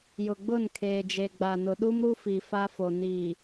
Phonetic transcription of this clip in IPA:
jʊ˨ɡ͡bʊ˦˨nkʰeː˨d͡ʒe˨ ɡ͡ba˨nʊ˨ɗu˦m ɾu˦fi˨ fa˦fo˨ niː˨

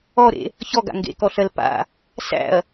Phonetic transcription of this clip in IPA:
ɔɾḛ | çɔɡa̰ ŋɡḛkɔɬɜl pa̰ | sæ̰ɐ̯

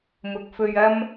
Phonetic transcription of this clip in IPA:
mʊ˨k̚fɵ˧ɥɐ˥m

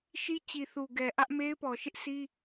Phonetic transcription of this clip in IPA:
ʃi˦t͡ɕi˨θu˨ɡɛ˨ ʔä˦ʔme˦ɪ̯pɔ˨ ʃɪ˦ʔsi˦

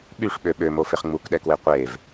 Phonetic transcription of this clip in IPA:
ɓyʂɓø ɓømofeχ ŋ͡mukɗɛkwe qʷev

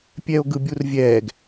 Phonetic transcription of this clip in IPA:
pʲɛo̯ɡɯbʲurvʲɛːɡ

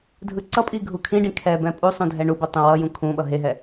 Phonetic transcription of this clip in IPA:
dʱɯǀʌpʼi ɡʱukʰĩɖĩ kʰɛbɛ̃ pʼusˤũ dʱɛɳubo tˤũwʌjũ kʰũɓʌ ɦeɦɛ

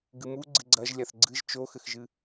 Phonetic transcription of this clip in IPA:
ɡɨmuɡ͡ǀɨ ɡ͡ǀɐʒ lʲaθɡ͡ǀɨʒ t͡ʃoxɘxʒɨ

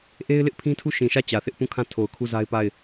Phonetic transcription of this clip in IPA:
ʔe˦ɪ̯lɪ˦ʔpʰĩ˦tʰu˦˨ ʃĩ˨ʃä˦˨ t͡ɕä˨θɪ˦ʔpũ˦˨kʰã˦˨ tʰo˨ʊ̯kʰu˦˨za˦ɪ̯pa˦˨ɪ̯

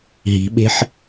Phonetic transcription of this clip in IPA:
ɦi̤ɓe̤ħ

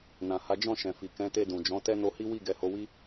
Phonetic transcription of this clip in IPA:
nã˨ha˨˦ d͡ʒɔ̃˦˨ ʃɛ̃˨fi˨ kɛ̃˨˦te˧ dũ˨d͡ʒɔ̃˨˦ tɛ˦no˧hi˦ wi˦˨ɡɛ˨˦ho˧wi˦

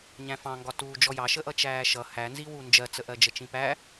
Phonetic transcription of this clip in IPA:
ɲæ̃fɑ̃ŋɡɒtuː d͡ʒɔjɑʃəʔʌ t͡ʃæːʃʌ hænziwu nd͡ʒɜt͡səʔɜ d͡ʒət͡ʃĩpæ

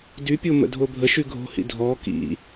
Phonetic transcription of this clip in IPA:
dypʲo mə̰dʱobʱəʃy ɡʱo̤hḭ dʱɔ kḭ

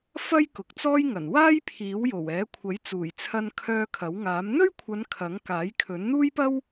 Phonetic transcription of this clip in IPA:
fɐ˥jkʊ˨k̚t͡sɔː˥jŋɐ˨˩n waː˥jpʰiː˨˥wjo˨˩wɛː˨˥ kʷʰɐ˨˥jt͡suː˨˩jt͡sʰɐ˧nkʰœː˧ kʰɐ˨˥wŋaː˨˥m n̪ɵ˥ɥkʷʰɐ˨˧n kʰɐ˨˥ŋ kaː˨˥jkʰɵ˨˥nn̪uː˥jpɐ˥w

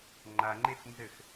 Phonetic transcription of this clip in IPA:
ŋ͡ǃaŋ͡ǃef nzɘx

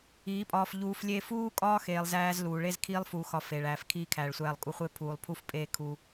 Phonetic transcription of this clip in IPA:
iː˨˦pʼɒː˧fʎuː˧flʲeː˦ fuː˦kʼɒː˦ xeː˨lˠzæː˧z luː˨ɭe˧z kʰiː˦lˠfuː˧xɒ˧ fe˨ɭæː˨fkʰiː˧ kʰæː˨ɭsʷæː˧lˠkʼu˧χʷe˦ pʰuː˨lˠpʰu˧f pʼeː˧kʰu˧

